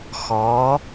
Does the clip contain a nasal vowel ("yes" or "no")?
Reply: no